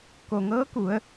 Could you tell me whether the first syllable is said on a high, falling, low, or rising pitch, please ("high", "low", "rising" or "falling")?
low